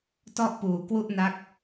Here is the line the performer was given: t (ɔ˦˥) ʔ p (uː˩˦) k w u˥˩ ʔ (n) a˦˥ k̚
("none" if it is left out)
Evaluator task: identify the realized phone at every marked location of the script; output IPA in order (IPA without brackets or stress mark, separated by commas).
ɔ˥˩, uː˩˦, n